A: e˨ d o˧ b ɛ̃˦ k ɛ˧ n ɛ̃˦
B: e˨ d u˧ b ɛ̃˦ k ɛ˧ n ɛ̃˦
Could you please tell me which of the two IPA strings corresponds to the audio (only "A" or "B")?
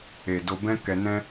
A